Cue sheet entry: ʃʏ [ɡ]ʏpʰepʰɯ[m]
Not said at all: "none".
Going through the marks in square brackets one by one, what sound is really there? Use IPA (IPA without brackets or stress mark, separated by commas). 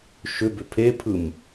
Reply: b, m